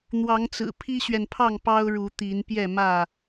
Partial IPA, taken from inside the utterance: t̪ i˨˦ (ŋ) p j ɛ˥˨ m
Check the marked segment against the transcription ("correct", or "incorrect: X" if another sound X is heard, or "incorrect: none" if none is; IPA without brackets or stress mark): incorrect: n